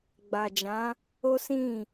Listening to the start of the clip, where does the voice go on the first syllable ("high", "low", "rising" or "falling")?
low